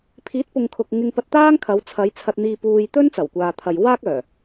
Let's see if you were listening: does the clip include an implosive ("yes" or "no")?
no